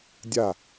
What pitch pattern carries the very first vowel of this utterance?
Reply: falling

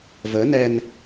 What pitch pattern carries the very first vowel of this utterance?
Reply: rising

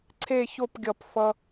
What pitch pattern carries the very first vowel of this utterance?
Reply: falling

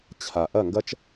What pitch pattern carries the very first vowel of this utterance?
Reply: low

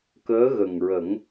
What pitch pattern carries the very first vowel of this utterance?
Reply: rising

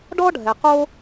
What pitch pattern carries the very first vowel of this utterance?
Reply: high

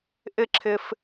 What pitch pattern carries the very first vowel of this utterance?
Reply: high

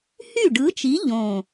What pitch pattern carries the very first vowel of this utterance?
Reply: falling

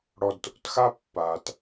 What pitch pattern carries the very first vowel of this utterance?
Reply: low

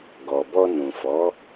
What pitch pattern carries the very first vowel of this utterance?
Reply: low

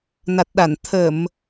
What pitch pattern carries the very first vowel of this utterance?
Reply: low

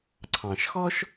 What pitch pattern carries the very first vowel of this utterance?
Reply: low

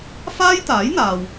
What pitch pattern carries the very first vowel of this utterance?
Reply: high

